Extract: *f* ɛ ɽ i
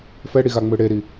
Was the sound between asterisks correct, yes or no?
yes